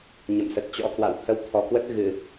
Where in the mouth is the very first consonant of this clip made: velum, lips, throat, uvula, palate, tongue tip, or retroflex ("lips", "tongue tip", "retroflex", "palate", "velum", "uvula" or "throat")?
palate